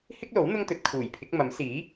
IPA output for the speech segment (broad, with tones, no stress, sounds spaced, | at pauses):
h ɪ˥ k̚ l o˨˥ w n̪ ʊ˥ ŋ t̪ ɵ˨˥ t̚ kʰ uː˨˩ j pʰ ɪ˨˥ k̚ m ɐ˨˥ m s iː˨˥